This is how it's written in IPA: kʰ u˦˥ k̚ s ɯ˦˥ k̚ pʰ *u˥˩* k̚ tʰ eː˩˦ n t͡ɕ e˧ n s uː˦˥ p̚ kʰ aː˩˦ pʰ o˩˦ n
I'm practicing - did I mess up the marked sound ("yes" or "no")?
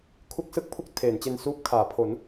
no